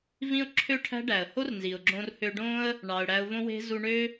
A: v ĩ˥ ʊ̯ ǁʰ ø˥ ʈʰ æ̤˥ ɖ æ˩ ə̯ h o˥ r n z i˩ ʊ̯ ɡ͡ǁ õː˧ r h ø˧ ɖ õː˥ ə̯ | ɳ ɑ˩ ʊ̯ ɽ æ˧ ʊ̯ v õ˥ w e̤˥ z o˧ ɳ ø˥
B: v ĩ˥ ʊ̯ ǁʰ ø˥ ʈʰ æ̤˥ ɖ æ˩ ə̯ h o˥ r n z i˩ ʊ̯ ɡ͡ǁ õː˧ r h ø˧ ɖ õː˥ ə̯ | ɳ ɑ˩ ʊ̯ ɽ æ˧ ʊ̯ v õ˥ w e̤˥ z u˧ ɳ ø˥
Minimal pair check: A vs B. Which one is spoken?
B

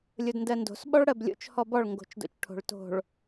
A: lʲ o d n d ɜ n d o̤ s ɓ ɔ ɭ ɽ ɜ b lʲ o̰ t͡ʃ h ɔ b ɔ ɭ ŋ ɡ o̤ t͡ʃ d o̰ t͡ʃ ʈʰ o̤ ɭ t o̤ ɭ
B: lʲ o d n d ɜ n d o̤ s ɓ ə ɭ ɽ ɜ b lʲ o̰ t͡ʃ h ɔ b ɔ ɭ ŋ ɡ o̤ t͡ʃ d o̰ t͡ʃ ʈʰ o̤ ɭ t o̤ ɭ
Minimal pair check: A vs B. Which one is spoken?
A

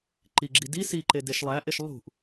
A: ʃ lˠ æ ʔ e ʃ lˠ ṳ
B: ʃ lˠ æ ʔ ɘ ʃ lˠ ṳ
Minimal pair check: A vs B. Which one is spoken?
A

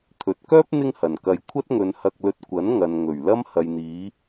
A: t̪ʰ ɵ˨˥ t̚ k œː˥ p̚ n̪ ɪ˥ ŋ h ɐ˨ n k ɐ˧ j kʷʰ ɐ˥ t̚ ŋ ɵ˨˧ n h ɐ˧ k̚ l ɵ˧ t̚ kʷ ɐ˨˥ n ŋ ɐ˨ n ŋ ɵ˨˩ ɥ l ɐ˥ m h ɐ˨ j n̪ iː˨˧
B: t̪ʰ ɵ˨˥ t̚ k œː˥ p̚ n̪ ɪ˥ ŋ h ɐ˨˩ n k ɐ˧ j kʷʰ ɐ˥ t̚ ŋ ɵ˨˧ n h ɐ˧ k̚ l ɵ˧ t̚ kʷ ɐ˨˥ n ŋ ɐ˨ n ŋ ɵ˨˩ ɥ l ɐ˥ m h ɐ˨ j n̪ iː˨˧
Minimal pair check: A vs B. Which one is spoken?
A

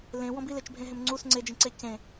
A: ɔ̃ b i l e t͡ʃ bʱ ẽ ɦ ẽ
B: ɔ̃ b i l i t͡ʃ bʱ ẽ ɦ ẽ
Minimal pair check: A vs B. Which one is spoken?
A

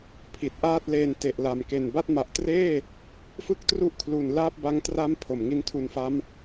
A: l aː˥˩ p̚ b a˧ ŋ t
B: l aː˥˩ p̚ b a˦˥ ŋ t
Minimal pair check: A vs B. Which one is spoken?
B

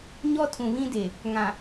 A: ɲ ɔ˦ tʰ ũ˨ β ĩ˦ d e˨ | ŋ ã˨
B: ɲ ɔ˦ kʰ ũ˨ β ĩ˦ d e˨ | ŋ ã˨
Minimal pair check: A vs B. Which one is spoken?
A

